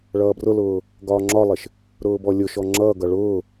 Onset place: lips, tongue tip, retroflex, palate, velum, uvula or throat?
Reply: retroflex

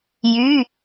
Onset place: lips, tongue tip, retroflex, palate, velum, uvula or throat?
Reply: palate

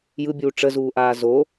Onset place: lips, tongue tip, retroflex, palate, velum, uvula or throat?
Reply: palate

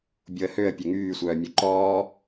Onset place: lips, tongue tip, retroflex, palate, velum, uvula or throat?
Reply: lips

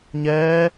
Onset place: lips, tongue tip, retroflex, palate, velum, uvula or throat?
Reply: palate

